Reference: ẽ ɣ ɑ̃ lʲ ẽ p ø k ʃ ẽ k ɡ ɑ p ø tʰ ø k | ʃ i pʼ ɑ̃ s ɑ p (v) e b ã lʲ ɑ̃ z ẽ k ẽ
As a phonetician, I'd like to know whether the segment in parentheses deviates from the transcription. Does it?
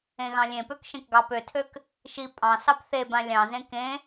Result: yes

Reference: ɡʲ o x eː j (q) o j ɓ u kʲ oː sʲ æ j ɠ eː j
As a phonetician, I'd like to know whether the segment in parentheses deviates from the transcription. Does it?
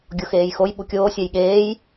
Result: yes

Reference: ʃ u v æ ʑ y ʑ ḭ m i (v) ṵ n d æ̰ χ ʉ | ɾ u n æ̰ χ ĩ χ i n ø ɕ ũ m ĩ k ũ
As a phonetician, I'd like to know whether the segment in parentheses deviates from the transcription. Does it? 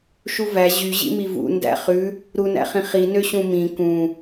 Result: no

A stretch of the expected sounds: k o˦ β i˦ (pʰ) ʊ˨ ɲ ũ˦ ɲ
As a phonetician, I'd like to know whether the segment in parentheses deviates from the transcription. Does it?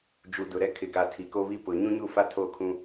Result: yes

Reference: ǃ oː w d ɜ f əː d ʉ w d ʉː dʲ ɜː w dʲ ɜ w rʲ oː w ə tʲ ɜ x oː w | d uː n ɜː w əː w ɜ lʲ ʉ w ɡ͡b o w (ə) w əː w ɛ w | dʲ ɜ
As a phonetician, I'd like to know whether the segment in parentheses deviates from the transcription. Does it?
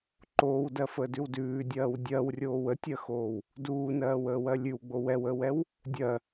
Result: yes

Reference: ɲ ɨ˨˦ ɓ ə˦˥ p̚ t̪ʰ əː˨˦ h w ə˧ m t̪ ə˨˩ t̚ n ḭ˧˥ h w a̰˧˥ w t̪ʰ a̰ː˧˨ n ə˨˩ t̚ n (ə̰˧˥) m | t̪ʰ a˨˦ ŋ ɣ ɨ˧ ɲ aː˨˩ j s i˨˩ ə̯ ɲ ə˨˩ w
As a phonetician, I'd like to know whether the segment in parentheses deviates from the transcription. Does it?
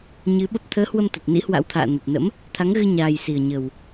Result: no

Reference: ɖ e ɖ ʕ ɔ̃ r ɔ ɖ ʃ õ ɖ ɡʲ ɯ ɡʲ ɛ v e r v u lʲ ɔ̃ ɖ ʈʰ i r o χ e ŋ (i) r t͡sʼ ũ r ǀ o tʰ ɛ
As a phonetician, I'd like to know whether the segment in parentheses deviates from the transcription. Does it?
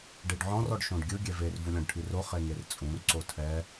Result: yes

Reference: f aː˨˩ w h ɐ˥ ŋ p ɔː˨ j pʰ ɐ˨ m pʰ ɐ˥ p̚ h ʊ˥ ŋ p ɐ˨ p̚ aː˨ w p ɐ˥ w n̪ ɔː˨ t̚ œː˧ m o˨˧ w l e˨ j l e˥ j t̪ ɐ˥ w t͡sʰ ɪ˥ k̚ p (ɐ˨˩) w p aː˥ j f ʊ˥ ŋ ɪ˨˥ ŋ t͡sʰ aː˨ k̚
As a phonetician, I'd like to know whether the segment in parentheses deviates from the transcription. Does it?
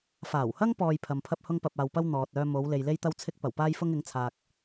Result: no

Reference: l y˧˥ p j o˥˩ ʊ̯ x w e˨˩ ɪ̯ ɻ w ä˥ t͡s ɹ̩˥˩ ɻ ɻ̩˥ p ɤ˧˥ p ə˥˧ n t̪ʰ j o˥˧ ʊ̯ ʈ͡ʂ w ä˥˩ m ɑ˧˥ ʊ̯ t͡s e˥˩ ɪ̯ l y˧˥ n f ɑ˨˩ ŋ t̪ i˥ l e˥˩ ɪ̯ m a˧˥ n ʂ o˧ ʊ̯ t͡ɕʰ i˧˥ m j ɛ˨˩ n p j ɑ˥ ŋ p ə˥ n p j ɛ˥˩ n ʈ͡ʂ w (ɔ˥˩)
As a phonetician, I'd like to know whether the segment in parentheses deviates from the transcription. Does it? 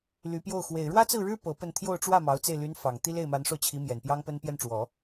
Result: yes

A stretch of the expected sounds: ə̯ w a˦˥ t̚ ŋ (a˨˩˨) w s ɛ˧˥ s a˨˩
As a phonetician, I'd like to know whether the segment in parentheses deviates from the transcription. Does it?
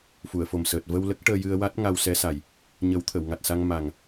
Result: yes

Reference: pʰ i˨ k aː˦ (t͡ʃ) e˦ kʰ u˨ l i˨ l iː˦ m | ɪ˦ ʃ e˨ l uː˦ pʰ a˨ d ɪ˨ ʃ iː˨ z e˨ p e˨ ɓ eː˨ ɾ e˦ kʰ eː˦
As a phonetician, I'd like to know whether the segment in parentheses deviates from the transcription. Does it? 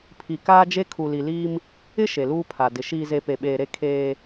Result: yes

